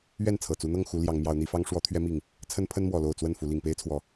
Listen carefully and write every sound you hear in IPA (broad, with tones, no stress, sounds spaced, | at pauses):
ɥ ɛ˥˨ n t͡sʰ ɤ˨˩ t͡s u˨˦ n̪ ɤ˥˨ ŋ x u˨˦ l j ɑ˨˦ ŋ m j ɑ˨˦ ʊ̯ n̪ i˨˦ f ɑ˦ ŋ ʂ w ɔ˨˦ t̪ʰ ɥ ɛ˨˦ m i˨˩ ŋ | t͡sʰ ə˦ n pʰ ə˦ n m w ɔ˨˩ l o˥˨ ʊ̯ t͡s w ə˥˨ n f u˨˦ l i˨˩ ŋ p e˦ ɪ̯ t͡sʰ w ɔ˨˩